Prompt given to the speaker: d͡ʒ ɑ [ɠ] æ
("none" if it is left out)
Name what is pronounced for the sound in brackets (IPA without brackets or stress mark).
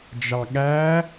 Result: ɠ